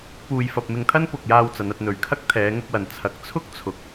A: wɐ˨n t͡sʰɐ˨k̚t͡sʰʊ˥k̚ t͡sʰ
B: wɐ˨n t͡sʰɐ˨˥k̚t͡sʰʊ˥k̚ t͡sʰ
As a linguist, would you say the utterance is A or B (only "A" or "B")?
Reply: B